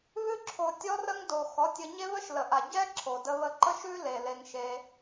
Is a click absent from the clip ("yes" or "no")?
no